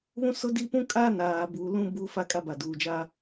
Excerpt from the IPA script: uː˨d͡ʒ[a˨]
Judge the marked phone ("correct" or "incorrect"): incorrect